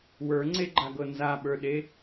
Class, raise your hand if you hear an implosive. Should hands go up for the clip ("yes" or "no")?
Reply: yes